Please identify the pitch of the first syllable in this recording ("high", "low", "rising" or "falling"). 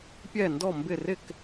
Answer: falling